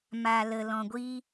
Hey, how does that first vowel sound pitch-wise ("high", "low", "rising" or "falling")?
low